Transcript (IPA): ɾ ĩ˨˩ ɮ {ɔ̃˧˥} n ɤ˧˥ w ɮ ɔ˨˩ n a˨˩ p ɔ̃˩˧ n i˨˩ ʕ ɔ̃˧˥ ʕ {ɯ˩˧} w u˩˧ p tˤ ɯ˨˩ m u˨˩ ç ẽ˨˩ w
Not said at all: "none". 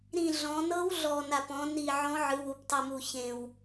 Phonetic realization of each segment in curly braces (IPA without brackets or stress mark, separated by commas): ɔ̃˩˧, ɯ˩˧